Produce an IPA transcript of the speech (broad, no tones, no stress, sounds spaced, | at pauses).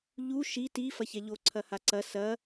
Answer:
ʎ u ʃ i t i f ɐ ç ɛ ʎ o ǀʰ ɐ h a ǀ ɐ s ɐ